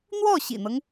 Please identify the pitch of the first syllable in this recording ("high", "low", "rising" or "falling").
falling